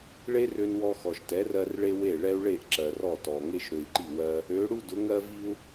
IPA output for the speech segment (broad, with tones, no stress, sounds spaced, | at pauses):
ɭ e˥ r ø˧ n w ɔ˧ x ɔ˩ ʃ t ɛ˩˥ r ɜ˧ r ɭ e˥ w e˥˩ ɭ ɛ˥ u̯ ɭ e˥˩ ʔ ǁ ɜ˩ r ɔ˥˩ t ɔ˩ ŋ e˥ ʃ ɾ ø˧ i̯ ǃ i˥˩ w ɜ˥ | ø˩˥ ɽ u˥ d ʊ˩˥ ŋ ɜ˥ v i˥ u̯